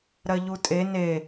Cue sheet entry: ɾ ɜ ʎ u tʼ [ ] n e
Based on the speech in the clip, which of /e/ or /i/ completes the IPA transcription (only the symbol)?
e